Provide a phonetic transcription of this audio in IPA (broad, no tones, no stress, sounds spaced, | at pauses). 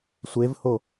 sʷ e v h o